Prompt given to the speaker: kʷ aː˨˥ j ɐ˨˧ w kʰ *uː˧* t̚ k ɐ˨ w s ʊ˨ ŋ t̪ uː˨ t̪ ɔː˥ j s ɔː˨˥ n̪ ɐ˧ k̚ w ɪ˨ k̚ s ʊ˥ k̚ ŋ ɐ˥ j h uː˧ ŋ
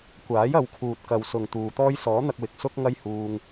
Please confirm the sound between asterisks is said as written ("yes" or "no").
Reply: no